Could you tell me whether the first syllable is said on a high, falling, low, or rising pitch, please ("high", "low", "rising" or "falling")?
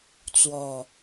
low